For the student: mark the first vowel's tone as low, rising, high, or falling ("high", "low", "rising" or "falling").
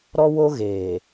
high